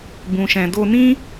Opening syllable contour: low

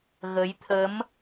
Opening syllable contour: rising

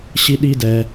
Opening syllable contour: high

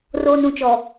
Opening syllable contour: high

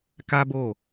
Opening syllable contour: high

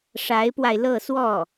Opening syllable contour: rising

